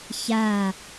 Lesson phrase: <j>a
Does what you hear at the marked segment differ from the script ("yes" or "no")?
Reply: yes